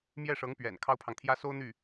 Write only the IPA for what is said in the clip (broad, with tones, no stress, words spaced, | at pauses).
mjɛ˥˩ʂɤ˧˥ŋ pɥɛ̰˨˩n kʰɑ˥ʊ̯pʰɑ˨ŋt̪ʰjä˥ so˥ʊ̯n̪y˥˩